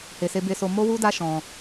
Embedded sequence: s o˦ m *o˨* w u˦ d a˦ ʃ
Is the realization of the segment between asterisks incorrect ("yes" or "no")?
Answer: yes